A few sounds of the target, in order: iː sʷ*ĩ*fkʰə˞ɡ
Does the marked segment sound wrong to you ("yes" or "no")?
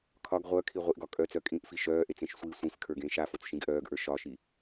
no